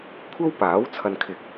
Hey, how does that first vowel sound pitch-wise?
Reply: high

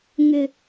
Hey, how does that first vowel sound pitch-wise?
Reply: high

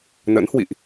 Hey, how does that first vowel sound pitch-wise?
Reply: rising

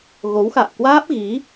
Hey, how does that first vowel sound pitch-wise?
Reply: rising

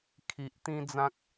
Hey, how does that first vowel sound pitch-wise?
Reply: low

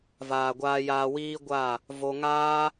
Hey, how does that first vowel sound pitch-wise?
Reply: low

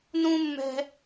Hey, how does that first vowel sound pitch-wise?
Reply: high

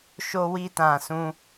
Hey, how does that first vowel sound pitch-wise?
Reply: high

